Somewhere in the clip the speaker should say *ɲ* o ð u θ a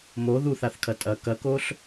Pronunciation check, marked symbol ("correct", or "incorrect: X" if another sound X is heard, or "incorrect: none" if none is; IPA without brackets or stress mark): incorrect: m